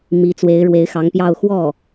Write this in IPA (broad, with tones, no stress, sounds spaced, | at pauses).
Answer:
m i˧˥ t͡s w e˧˥ ɪ̯ ɻ w e˧˥ ɪ̯ x ɑ˧˥ ŋ p j ɑ˥˧ ʊ̯ x w ɔ˥˩